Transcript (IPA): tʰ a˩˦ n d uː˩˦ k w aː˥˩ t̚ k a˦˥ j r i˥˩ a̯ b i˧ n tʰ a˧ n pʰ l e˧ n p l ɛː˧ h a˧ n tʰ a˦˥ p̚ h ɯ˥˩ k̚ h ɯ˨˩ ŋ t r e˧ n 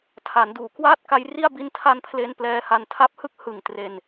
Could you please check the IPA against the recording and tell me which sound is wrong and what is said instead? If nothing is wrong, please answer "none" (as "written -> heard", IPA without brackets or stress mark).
none